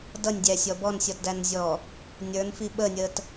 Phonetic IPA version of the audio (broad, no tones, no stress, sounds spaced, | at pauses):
d ʌ nʲ dʲ æ sʲ ɔ b ɔ n sʲ ɔ t d æ n zʲ ɔː | nʲ ə˞ n f i ɓ ə nʲ əː t